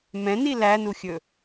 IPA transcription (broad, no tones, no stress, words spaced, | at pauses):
mɛ̃ni lænuxʲɵ